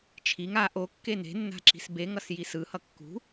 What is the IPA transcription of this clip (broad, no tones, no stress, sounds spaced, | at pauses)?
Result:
t͡ʃʰ i ŋ a ʔ o kː e n e̤ nː a̤ ǁ i̤ s b e ŋ ʌ s j i s ɯ h ʌ kː ṳ